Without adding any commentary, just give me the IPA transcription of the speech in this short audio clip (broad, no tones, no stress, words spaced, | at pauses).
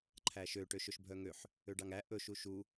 ǃʰæʃø ʈøʃɵʃbʱœŋøħ | øɖɑŋæ ʔɵ ʃuʃu